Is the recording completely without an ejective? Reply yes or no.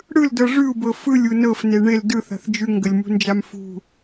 yes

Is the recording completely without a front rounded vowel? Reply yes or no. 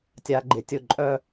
no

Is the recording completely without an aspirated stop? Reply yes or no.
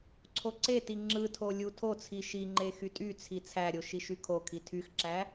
no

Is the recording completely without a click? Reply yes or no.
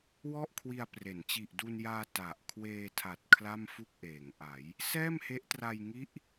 yes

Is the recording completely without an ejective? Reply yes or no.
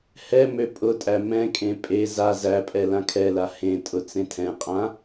no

